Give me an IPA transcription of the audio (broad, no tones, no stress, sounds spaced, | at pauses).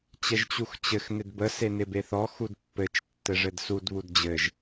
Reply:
t͡ɕ ɛ ʒ t͡ɕ u x t͡ɕ ɘ x n ɪ d b ə s e n ɪ b e θ ɔ x u d pː ɘ t͡ʃ tː ɘ ʐ ɘ d s u d β u d d͡ʑ ɘ ʒ